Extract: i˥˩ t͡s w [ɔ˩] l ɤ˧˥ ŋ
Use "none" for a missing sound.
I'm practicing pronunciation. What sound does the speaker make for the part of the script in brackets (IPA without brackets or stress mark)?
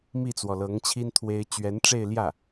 ɔ˩